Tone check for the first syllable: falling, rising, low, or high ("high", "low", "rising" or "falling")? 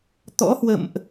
rising